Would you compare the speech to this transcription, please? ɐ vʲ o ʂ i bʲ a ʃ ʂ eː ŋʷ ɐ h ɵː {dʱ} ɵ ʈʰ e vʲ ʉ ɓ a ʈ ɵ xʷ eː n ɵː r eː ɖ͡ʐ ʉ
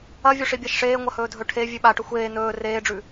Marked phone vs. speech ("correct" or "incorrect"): correct